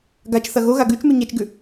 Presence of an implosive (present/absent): absent